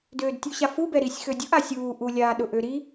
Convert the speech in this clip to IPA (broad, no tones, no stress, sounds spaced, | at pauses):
d øː d tʲ u ɕ a f u b ɛ ɾ i sʲ x ø dʲ ʊ ʔ a sʲ uː ʔ u lʲ aː ɗ ʊ ʔ ø ɾ i